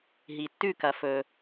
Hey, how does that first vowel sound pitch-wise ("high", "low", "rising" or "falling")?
low